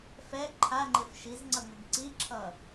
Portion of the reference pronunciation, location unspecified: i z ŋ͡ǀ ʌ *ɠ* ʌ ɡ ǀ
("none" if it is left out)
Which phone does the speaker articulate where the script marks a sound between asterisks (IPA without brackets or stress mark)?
ŋ